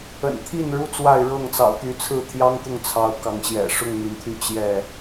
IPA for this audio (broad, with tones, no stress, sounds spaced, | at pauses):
ə̰˨˩ n t̪ʰ i˥˨ n ɻ u˦ t͡s w a˥˨ ɪ̯ ɻ ɤ˥˨ ŋ t͡s ɑ̰˨˩ ʊ̯ t̪ y˨˦ t͡sʰ ɹ̩˥˨ t̪ʰ j ɑ˦ ŋ t̪ ʊ˥˨ ŋ t͡sʰ ɑ˨˦ ʊ̯ k ɑ˨˦ ŋ ɕ j ɛ̰˨˩ ʂ ʊ˥˨ ŋ n̪ i˩ n t̪ʰ y˥˨ t͡ɕ j ɛ˥˨